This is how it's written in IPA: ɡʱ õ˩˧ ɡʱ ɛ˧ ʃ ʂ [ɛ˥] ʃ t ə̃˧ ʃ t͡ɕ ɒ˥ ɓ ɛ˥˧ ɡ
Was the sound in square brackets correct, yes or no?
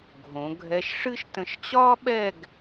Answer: no